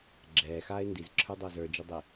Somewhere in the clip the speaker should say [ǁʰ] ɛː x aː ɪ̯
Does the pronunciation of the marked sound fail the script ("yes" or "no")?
yes